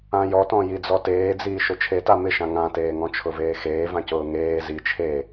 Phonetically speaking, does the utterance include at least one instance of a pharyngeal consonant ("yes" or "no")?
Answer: no